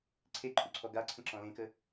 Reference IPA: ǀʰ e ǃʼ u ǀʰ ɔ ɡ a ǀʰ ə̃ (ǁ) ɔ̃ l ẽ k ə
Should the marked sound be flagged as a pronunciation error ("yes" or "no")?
no